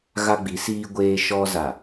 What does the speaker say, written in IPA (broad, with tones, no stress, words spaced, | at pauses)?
ɣa˦ɡ͡bi˨˦siː˦ ɡʷeː˦ ʃɔ˦za˨